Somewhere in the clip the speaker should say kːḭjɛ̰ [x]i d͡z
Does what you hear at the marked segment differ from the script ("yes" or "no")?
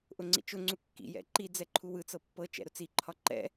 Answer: yes